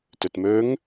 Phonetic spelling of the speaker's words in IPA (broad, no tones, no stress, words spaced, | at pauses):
tɵtmɵŋ